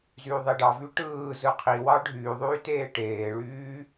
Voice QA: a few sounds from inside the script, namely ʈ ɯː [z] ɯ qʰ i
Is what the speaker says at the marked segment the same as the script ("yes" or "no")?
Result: yes